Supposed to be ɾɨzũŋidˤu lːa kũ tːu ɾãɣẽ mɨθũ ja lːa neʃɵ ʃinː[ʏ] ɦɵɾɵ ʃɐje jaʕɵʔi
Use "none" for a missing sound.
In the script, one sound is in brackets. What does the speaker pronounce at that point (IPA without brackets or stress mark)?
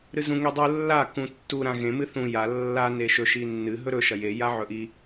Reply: ɨ